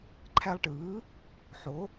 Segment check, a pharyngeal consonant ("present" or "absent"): present